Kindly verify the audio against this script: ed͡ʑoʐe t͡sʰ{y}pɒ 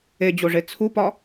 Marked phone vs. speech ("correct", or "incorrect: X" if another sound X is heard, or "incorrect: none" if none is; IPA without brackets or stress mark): incorrect: u